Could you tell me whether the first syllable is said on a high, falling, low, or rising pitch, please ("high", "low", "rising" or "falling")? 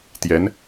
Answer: rising